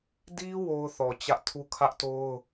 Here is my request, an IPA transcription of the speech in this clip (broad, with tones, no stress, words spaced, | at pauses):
di˦ wo˦ʊ̯θɔ˨t͡ɕä˦ʔ tʰu˦kʰä˦ʔto˦ʊ̯